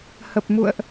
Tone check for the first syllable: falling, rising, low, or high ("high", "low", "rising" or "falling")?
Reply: low